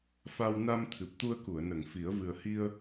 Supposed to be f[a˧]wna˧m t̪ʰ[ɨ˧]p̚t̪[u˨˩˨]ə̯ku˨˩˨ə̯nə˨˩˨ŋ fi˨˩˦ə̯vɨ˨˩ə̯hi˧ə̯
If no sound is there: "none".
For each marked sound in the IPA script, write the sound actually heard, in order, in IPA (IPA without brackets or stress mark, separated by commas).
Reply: a˧, ɨ˨˩, u˧